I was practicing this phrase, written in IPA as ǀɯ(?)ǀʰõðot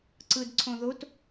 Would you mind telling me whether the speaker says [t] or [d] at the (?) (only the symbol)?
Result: d